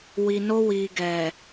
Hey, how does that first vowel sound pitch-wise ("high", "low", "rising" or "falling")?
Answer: low